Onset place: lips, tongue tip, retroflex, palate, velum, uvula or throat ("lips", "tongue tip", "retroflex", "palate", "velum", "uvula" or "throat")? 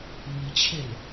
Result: lips